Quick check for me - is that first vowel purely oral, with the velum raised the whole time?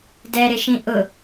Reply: yes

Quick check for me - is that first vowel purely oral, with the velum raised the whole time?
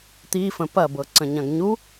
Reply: yes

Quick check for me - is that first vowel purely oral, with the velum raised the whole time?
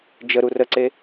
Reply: yes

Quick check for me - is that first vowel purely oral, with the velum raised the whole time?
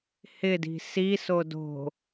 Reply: yes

